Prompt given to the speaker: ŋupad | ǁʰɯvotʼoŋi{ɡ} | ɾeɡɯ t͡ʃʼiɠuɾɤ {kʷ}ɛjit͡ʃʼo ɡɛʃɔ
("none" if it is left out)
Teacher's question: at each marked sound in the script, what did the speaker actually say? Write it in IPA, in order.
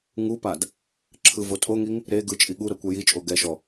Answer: ŋ, kʷ

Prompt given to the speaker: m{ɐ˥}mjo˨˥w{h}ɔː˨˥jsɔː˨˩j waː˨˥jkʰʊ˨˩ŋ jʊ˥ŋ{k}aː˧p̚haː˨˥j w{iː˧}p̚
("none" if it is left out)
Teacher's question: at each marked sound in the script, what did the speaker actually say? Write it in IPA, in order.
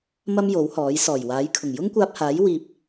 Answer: ɐ˥, h, kʷ, iː˧

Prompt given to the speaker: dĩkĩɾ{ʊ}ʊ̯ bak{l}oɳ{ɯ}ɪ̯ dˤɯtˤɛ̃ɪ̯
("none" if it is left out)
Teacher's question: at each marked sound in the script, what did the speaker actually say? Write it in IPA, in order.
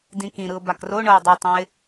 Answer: ɯ, r, ɤ

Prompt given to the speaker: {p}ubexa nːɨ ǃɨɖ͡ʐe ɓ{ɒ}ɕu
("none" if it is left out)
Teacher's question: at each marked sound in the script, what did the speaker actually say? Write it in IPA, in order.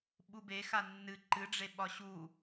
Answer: ɓ, ɒ

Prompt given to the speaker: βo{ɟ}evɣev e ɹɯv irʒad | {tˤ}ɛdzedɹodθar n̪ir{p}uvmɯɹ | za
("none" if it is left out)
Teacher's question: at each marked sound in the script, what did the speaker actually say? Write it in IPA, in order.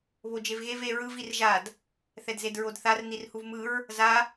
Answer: d͡ʒ, θ, h

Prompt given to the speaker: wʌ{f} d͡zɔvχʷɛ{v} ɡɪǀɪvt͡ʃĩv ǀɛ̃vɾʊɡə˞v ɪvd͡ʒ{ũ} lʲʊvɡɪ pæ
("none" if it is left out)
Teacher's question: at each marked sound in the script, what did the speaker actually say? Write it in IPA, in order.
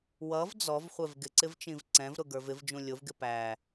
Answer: v, v, ũ

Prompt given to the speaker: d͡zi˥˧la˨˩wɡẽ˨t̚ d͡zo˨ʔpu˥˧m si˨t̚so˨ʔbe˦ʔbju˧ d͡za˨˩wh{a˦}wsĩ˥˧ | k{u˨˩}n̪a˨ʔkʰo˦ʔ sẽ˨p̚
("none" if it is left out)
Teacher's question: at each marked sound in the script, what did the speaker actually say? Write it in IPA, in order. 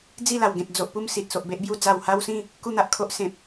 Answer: a˦, u˥˧

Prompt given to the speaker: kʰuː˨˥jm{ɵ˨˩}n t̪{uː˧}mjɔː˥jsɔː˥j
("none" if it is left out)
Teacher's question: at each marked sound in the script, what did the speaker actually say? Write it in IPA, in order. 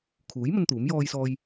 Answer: ɵ˧, uː˨˥

